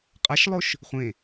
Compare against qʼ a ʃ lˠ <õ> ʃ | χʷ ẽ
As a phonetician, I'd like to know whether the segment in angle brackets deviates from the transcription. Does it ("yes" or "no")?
yes